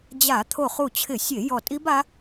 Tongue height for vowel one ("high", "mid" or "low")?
low